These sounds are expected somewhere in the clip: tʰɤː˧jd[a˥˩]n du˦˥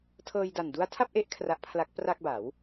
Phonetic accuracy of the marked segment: incorrect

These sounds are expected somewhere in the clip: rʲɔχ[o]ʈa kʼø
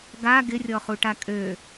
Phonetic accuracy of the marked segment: incorrect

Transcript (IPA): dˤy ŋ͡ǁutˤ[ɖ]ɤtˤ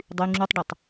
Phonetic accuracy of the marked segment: correct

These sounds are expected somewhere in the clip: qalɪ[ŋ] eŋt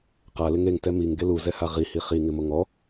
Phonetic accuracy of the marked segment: correct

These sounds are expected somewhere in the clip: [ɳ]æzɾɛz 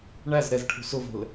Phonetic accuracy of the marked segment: correct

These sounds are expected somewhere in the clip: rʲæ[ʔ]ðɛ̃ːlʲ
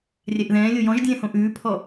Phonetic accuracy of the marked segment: correct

